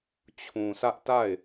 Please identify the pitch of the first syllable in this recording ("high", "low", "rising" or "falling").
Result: low